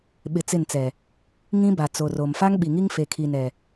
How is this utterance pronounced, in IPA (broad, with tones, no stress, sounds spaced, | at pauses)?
ɓ ɪ˨ t͡s ɪ˦˨ n t͡s ɛ˨ | ŋ ĩ˦ b a˨ t͡s o˨ r o˨ m f a˦ ŋ ɓ i˨ ŋ i˦ ŋ f e˨ kʰ i˨ n ɛ˨